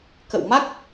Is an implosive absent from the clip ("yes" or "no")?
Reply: yes